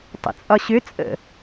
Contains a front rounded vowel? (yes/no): yes